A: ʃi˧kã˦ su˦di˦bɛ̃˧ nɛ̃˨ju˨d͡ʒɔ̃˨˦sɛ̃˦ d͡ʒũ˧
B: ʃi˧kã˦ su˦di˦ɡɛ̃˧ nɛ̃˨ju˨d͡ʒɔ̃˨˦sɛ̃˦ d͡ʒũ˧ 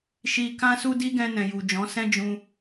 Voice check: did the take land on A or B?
B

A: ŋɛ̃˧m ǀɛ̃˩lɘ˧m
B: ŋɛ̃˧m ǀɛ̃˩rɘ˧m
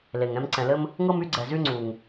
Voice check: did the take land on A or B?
A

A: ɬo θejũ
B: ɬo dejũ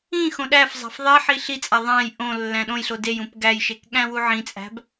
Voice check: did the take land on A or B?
B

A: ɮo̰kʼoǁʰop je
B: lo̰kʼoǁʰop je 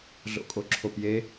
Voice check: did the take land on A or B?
A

